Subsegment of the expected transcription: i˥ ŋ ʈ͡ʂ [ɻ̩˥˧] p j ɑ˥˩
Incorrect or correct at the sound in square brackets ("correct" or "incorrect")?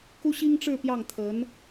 correct